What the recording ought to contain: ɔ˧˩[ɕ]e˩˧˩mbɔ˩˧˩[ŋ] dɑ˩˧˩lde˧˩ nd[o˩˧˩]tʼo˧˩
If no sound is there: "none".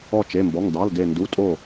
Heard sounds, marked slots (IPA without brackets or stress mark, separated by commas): t͡ʃ, ŋ, u˩˧˩